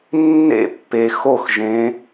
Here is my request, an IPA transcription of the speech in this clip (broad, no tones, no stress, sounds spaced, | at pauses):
nː ḛ pː e x o x ʒ ẽ